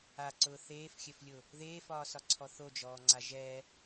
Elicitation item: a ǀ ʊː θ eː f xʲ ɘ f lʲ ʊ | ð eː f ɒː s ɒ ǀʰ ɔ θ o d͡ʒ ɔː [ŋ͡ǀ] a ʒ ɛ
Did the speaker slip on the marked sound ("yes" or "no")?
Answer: no